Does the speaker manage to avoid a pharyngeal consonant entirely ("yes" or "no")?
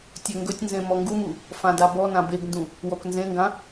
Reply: yes